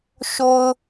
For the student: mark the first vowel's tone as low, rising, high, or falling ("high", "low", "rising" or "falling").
low